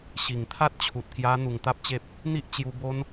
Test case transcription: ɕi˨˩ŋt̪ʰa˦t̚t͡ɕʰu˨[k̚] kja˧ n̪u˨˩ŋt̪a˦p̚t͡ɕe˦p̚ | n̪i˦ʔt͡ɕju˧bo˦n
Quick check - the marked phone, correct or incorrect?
incorrect: t̚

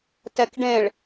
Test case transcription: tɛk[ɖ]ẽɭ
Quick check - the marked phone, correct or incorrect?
correct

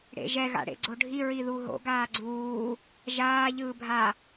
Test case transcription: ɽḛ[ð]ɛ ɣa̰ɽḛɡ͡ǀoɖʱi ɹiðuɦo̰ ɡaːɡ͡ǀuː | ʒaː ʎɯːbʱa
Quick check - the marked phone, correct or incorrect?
incorrect: ʒ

